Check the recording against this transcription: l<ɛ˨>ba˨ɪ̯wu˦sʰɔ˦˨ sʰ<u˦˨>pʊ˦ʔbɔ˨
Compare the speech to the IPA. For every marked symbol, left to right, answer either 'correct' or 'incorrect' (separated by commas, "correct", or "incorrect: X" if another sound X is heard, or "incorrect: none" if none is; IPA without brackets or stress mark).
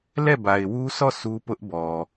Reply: incorrect: ɛ˦˨, incorrect: u˦